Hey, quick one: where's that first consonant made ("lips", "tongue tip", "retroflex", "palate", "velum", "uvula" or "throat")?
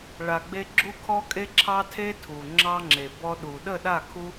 retroflex